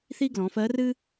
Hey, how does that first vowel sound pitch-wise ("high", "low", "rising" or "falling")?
high